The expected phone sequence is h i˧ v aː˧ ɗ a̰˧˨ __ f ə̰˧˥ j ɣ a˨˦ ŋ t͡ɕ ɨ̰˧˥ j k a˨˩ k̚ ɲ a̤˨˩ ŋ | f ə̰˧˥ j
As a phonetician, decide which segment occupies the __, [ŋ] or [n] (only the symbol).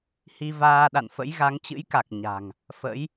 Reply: n